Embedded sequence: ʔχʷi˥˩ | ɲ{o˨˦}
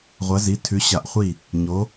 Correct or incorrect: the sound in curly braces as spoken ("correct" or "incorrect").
correct